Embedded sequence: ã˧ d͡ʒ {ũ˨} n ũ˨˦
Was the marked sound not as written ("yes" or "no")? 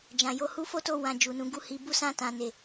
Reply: yes